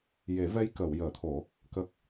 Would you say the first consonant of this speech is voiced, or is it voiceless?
voiced